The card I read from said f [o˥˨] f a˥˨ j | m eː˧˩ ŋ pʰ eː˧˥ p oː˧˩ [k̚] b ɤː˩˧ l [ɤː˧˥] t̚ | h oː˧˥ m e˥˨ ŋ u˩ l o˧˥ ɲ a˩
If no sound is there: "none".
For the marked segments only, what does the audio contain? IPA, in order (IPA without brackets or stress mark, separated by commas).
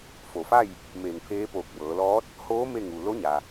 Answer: o˩, k̚, ɔː˧˥